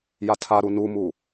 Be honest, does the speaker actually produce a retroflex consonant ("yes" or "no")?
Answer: no